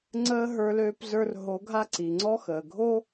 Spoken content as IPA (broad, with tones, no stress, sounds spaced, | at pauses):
ŋ͡ǀ əː˧ ɦ ə˞˧ l øː˧ p z ə˞˧ r ɦ o˩˧ ɡʱ a˧ ǀ i˩ ŋ͡ǀ ɔ˥ x əː˩ ɡʱ o˥